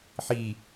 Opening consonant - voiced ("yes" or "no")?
no